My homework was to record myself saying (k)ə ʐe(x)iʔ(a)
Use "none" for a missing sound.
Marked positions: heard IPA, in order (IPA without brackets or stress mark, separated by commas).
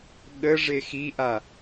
ɠ, x, a